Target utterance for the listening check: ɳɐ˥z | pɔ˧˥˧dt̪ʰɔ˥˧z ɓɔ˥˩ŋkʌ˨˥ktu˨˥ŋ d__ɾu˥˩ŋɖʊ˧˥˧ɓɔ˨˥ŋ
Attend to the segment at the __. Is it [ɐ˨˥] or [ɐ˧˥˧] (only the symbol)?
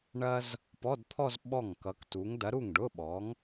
ɐ˨˥